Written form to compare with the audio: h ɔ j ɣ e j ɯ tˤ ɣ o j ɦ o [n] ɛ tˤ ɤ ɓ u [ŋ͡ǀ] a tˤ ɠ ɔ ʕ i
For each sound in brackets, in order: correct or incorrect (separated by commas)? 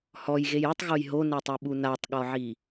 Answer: correct, incorrect